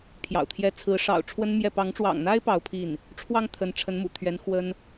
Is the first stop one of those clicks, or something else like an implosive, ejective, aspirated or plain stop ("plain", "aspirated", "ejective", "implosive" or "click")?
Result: aspirated